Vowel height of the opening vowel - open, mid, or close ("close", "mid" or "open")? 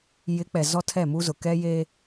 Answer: close